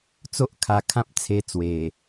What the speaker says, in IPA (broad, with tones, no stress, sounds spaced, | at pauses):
t͡s o˦ ʔ kʰ a˧ kʰ ã˦ p̚ t͡sʰ e˧ t͡s w e˨˩